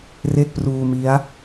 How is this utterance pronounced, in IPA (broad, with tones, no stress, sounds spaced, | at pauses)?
r e˥˩ k̚ p r uː˧ m i˦˥ a̯